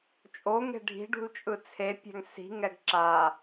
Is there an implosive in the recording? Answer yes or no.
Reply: no